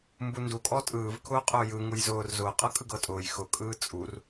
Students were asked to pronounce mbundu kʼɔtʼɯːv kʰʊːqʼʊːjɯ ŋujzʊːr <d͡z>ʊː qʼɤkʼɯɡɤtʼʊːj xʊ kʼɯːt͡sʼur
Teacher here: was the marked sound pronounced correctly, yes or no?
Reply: no